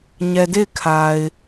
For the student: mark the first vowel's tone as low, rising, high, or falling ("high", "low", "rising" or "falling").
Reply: low